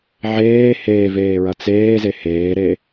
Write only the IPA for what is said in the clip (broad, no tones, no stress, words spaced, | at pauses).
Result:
ʕeː heːveːɹɐ t͡seːze heːɾe